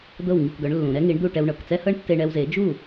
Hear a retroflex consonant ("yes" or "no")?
yes